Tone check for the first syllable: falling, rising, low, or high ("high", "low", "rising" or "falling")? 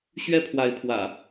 high